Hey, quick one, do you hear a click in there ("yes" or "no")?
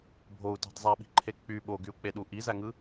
yes